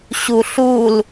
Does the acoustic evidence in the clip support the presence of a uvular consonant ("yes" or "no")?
no